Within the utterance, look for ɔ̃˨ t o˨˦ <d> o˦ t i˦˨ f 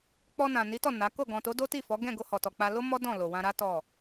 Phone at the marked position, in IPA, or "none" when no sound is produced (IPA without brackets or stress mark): d